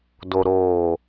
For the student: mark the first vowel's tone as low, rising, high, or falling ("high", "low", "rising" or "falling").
low